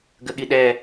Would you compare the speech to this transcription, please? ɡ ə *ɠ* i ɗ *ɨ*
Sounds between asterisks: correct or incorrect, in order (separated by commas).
correct, incorrect